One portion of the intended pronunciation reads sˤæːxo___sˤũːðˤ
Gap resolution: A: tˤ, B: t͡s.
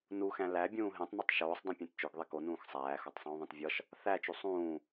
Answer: A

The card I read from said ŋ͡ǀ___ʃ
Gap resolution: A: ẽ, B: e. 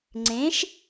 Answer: A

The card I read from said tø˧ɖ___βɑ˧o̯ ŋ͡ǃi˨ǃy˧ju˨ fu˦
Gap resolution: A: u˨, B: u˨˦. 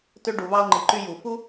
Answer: A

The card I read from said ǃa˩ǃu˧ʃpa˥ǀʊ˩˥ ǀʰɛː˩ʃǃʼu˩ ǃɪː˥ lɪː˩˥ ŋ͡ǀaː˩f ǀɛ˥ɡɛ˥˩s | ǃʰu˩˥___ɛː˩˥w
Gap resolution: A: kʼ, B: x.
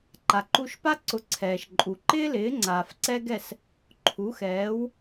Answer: B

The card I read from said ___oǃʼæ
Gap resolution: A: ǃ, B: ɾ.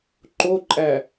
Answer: A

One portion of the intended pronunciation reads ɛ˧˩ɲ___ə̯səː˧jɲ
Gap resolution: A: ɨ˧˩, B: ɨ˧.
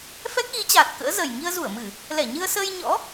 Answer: B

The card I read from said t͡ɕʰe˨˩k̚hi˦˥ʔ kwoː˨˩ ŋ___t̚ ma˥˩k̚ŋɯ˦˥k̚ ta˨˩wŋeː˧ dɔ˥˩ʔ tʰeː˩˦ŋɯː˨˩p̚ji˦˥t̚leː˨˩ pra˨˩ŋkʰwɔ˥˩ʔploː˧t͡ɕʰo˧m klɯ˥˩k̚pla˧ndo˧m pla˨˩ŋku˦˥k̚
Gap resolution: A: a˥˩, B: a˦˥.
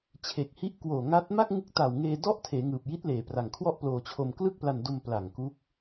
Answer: B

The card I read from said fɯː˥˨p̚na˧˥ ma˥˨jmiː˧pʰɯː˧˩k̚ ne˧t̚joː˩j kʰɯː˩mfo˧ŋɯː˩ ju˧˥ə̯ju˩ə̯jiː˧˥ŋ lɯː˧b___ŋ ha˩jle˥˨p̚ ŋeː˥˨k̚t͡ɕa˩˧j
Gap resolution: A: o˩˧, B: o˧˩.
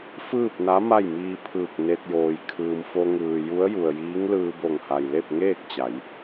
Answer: B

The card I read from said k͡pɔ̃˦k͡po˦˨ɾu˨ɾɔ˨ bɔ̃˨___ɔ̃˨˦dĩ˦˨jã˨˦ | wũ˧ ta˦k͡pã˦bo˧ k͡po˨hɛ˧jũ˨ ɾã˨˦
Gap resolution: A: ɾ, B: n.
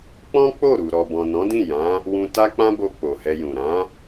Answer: B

